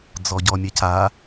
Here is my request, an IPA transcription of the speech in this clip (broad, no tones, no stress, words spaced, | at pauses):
d͡zɔɟɔmʲɛca